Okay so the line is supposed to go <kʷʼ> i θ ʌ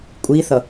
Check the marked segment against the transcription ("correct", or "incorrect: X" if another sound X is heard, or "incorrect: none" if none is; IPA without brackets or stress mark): correct